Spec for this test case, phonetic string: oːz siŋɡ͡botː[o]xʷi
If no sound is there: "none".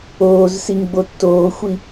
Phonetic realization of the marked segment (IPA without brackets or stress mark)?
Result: oː